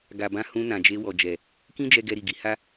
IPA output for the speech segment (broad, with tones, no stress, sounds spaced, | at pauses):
ɡ a˨ b ã˧ h ũ˧ n ã˨ d͡ʒ e˧ w ɔ˨ d͡ʒ ɛ˨ | k ĩ˦ d͡ʒ ɛ˧ ɡ ɛ˧ ɾ i˨ ɡ i˨˦ h a˦